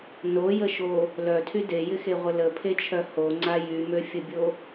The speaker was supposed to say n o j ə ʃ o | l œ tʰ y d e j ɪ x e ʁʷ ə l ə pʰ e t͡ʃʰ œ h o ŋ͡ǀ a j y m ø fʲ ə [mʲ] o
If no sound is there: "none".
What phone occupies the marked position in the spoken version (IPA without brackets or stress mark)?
bʲ